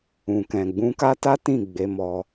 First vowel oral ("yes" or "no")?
no